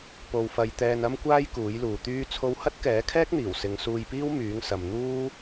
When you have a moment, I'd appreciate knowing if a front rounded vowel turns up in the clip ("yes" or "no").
yes